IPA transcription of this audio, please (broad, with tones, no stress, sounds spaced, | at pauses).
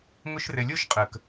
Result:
ŋ ʊ˦ ʃ r ɘ˧ lʲ o˦ ʃ qʼ ə˨ k